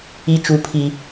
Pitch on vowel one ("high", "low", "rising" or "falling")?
high